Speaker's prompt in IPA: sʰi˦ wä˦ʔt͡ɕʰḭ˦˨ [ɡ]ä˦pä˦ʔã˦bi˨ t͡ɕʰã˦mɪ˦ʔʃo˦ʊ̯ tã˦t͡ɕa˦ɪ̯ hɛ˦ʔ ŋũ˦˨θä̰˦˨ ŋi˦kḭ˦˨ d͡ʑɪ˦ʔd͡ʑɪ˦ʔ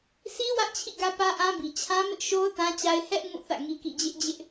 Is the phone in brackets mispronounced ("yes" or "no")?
no